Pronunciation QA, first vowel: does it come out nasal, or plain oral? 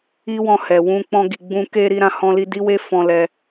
oral